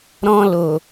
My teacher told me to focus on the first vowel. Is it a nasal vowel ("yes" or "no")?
yes